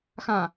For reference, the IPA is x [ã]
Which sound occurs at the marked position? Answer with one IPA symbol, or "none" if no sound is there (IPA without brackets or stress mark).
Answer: ã